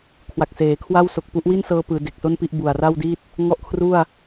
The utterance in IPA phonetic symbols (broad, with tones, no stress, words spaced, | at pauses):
kʰwa˨˩k̚seː˩˦kʰwa˥˩w so˨˩k̚pu˦˥ʔ wi˥˩nsɤː˧pɯː˩˦ de˨˩k̚so˥˩npi˥˩ʔ bu˨˩a̯ra˥˩wdi˥˩t̚ | ŋɔ˥˩ʔkʰru˥˩a̯